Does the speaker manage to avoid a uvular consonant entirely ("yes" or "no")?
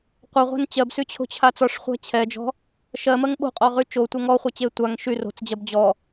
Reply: no